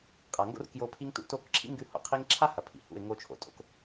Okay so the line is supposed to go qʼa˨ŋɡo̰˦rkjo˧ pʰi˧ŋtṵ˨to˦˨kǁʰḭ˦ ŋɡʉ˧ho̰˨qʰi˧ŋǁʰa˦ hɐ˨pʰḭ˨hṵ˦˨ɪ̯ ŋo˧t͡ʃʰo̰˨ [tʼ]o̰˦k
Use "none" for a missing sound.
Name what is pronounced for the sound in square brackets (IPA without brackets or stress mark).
tʼ